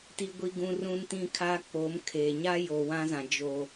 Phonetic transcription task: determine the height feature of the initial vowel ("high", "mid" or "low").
high